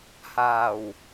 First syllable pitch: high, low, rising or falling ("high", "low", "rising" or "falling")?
low